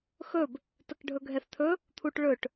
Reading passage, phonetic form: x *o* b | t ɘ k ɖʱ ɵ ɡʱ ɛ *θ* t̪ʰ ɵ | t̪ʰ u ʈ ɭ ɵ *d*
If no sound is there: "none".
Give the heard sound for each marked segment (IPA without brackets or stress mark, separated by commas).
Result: ɵ, θ, ʈ